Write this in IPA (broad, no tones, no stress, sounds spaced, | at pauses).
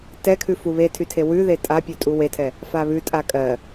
t ɛ kʰ ʉ f u β e tʰ y tʰ e w ʉ ð e tʼ a pʲ ʉ tʼ u w e tʰ ɛ | f a β ʉ tʼ a kʼ ɜ